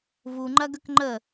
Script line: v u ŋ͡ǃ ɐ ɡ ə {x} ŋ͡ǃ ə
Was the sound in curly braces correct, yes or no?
no